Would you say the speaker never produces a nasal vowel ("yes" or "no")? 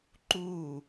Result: yes